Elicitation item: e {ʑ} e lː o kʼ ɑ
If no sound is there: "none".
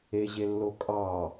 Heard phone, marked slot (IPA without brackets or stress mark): ʑ